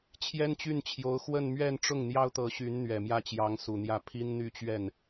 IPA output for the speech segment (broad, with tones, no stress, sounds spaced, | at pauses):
t͡ɕʰ j ɛ˥ n t͡ɕ y˥˩ n t͡ɕʰ j o˧˥ ʊ̯ x w ə˥˧ n m ɥ ɛ˥˧ n ʈ͡ʂ ʊ˥˩ ŋ n̪ j ɑ˥ ʊ̯ t̪ ɤ˧˥ ɕ y˧˥ n n̪ ɥ ɛ˨˩ m j ä˥˩ t͡ɕ j ɑ˧˥ ŋ s u˨˩ n̪ j ä˥˩ pʰ i˥ n n̪ y˥˧ t͡ɕ ɥ ɛ˥˩ n